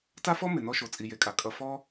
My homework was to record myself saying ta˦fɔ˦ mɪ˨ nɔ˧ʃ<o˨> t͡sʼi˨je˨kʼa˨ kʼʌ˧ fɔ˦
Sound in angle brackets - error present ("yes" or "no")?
no